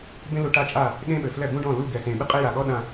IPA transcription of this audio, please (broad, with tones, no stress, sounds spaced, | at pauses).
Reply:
b ẽ˦ l u˧ ʈ a˦˨ t͡ʃʼ a˦˨ | ɠ ẽ˦ ɓ ɘ˨ f l ɛ˦˨ b ũ˦ ɖ ɔ̃˦˨ l u˦˨ ɡ ɛ˨ s ẽ˨ ɓ ɨ˦ qʼ e˦ j a˨ ɠ ɔ˦ ɗ ã˧